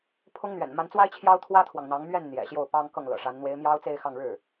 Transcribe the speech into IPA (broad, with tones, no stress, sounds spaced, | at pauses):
pʰ ʊ˥ ŋ n̪ ɥ ɛ̰˨˩ n m a˧˥ n t͡s w a˥ ɪ̯ t͡ɕʰ j ɑ˥ ʊ̯ t̪ʰ w ä˥ t̪ʰ w ɑ˨ ŋ n̪ ɑ˧˥ ŋ m ɥ ɛ˥˩ n n̪ j ɛ̰˨˩ ɕ j o˥˩ ʊ̯ p ɑ˥ ŋ k ɤ˥˩ ŋ l ɤ̰˨˩ ʂ a˧˥ n n̪ w e˧˥ ɪ̯ m j ɑ˥ ʊ̯ t͡s e˥˧ ɪ̯ x ɑ˥˧ ŋ ɻ ɻ̩˥˩